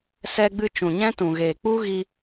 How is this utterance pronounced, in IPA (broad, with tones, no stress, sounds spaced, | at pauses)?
s ɛ˧ ɡ͡b ɨ˧ t͡ʃ ũ˨ ɲ ɛ̃˦ t ũ˨ ɣ eː˨ k͡p u˦ ɣ i˧